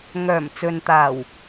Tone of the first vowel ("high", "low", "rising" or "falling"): low